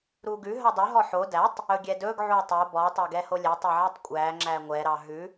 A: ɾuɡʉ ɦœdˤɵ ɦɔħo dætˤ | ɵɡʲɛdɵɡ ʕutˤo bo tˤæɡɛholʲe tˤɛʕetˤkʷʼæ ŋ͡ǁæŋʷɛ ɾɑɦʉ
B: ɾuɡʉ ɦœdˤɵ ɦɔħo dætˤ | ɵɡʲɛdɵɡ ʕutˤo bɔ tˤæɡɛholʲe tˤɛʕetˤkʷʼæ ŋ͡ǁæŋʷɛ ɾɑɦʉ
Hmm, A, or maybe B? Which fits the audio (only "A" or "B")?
B